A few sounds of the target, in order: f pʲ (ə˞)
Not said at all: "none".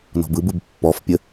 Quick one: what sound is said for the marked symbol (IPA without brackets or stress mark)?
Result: ə